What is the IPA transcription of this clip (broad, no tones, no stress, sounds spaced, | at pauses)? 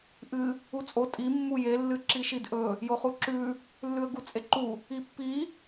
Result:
ʔ ɨ | u t͡sʼ o tʼ i mː u j e lː ɨ ǁ i ʃ i d ʔ ɵ | j o χ u ǁ ʉ | lː ʉ ə̯ ɡ u t͡sʼ e ǃ u | i pː i